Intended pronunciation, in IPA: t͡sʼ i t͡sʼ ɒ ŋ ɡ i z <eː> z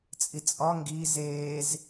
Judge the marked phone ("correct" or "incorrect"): correct